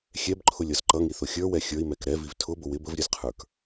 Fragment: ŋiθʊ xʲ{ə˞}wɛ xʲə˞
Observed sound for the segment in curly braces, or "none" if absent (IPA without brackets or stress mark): ə˞